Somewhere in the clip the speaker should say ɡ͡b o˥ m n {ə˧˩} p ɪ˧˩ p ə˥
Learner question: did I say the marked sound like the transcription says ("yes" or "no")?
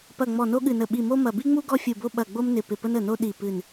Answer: no